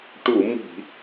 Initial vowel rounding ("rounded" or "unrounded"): rounded